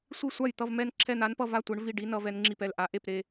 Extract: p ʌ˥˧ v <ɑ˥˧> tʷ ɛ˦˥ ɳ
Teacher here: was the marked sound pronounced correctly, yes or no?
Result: no